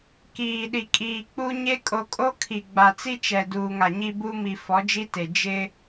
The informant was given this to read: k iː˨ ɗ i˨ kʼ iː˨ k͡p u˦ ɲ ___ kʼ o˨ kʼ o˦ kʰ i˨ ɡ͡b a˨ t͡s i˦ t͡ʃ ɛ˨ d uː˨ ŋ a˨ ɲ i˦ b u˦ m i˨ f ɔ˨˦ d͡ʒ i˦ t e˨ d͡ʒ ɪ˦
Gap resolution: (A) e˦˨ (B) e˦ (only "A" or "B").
B